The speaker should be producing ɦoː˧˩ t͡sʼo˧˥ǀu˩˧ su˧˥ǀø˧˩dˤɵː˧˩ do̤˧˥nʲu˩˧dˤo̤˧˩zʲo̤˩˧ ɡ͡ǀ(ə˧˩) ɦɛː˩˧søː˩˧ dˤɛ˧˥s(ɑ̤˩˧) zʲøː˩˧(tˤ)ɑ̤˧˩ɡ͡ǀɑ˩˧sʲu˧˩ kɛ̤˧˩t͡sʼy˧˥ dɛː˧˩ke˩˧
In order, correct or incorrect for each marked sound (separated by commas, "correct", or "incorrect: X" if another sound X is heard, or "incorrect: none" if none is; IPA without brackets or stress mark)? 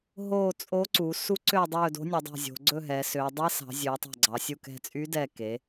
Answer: incorrect: ɵ˧˩, correct, correct